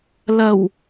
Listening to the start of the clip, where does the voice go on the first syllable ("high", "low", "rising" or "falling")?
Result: low